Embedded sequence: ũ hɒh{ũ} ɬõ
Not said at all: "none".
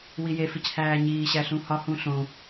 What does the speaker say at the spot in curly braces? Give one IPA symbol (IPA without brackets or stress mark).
ũ